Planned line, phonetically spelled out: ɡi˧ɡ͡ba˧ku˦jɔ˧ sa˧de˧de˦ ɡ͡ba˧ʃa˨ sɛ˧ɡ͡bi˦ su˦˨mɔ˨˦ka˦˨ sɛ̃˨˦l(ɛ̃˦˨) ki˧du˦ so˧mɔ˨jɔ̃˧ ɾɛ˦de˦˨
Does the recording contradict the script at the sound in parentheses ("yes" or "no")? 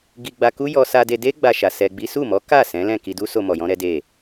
no